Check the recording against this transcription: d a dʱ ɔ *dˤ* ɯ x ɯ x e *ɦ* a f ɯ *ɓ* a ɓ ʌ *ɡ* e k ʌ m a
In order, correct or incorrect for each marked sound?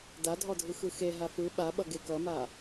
incorrect: dʱ, correct, correct, correct

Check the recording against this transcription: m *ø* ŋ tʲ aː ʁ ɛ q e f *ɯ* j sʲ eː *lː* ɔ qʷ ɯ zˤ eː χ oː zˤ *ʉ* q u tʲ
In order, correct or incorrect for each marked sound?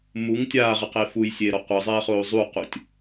incorrect: u, incorrect: u, incorrect: ɾ, incorrect: u

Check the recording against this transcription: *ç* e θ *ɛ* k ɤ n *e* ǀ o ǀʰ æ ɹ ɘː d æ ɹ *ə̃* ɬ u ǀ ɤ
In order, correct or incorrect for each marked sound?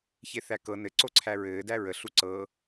correct, incorrect: æ, incorrect: ɘ, incorrect: ə

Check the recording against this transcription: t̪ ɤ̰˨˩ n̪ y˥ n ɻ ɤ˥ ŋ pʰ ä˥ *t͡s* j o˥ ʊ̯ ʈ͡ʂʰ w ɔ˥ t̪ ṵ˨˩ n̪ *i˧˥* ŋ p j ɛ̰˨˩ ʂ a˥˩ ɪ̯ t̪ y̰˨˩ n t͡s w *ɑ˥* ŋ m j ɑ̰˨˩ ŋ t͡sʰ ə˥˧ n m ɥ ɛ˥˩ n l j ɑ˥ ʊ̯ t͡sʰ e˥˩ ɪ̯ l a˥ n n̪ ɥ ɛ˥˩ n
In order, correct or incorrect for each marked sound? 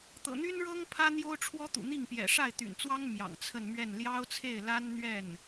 incorrect: n̪, incorrect: i˥˩, correct

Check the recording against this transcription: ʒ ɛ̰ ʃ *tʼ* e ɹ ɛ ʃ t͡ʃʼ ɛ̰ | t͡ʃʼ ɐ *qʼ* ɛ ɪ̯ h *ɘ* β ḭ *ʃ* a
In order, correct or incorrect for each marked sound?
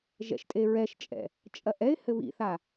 correct, incorrect: ʔ, correct, incorrect: θ

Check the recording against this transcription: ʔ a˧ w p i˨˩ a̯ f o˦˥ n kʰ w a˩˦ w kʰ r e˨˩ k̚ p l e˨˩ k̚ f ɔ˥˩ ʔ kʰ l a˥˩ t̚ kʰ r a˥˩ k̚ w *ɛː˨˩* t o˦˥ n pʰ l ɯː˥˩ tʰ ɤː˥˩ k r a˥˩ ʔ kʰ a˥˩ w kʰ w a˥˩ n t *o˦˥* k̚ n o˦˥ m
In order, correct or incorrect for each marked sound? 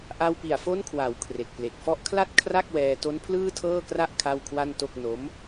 incorrect: ɛː˧, incorrect: o˥˩

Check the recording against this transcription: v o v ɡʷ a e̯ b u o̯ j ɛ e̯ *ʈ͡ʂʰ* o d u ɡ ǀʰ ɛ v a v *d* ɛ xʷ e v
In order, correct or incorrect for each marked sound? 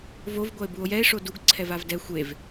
incorrect: ʂ, correct

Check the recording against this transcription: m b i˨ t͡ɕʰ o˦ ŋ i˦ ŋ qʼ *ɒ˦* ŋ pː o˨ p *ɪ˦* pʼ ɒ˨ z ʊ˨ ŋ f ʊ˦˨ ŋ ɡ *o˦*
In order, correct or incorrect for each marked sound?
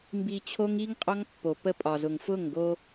correct, incorrect: ə˦, correct

